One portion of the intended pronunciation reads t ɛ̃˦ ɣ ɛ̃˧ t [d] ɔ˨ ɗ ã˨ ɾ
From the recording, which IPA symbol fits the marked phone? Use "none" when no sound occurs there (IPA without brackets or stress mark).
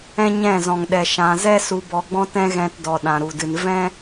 d